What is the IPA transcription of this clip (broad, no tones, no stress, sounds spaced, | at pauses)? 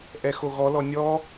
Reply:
ʔ ɛ x o ɣ ɔ l ɔ nʲ ɔ